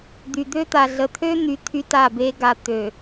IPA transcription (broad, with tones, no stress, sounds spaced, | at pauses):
d̪ y˨ d̪ ø˦ t̪ a˨ ɮ ə˨ t̪ʰ ø˦ n̪ y˨ t̪ʰ y˦ t a˦˨ b e˦ ɡ a˨ t̪ ø˨